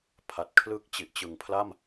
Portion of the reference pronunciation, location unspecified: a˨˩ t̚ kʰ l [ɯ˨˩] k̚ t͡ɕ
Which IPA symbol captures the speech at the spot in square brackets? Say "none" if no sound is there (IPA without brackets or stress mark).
ɯ˦˥